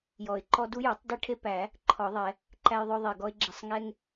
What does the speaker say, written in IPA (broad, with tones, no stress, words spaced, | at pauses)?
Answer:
jɔ˨˩˦ɪ̯ǃɔ˦ du˦jo˨˩˦tˤde˦ ʈʰe˦pæ˨˩˦ | ǃʰɔ˨˩˦ðˤɛ˨˩˦ | ǃæ˦jðˤo˦ðˤe˧˩ ɡɔ˦ɪ̯ɡ͡ǁe˧˩sˤ ŋɛ˦ŋ